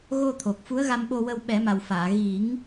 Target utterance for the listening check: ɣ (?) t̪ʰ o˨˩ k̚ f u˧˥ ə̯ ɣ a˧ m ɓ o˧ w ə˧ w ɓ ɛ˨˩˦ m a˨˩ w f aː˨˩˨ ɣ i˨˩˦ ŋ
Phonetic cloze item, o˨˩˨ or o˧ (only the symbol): o˧